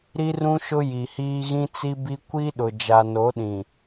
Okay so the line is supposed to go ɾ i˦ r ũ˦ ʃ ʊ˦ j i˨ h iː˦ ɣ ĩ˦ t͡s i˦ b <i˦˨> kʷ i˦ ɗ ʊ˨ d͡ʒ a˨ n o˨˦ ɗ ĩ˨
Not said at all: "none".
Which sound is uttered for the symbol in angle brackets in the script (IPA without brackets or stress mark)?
i˦